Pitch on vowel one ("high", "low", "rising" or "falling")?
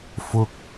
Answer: high